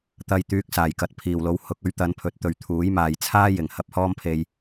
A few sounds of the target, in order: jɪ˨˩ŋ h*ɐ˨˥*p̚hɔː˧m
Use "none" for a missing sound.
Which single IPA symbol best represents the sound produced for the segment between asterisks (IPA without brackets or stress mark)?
ɐ˨˥